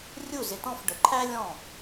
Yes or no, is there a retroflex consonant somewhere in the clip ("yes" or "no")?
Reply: yes